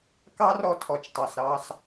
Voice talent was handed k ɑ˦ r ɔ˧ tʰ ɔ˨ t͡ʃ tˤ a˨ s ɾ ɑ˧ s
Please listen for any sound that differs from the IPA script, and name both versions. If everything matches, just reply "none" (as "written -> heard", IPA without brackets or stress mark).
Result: none